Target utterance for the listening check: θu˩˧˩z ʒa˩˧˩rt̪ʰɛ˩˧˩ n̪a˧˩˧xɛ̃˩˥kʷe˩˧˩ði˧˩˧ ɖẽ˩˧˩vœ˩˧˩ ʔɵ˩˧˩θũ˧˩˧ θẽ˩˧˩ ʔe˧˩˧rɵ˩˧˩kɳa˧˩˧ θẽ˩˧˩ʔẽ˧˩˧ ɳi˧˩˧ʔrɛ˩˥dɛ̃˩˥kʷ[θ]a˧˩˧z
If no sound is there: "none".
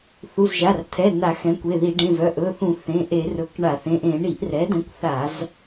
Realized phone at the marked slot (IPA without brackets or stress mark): θ